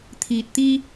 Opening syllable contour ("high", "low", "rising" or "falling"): low